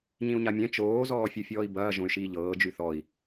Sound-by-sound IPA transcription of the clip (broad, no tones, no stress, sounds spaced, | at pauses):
ɲ ĩ u̯ ɲ a mʲ ɛ̃ t͡ʃ oː z ɔː fʲ ɯ fʲ ɔː i̯ b ɐː ʒ õ y̯ ʃ iː ʎ ɤː d͡ʒ y θ ɔ i̯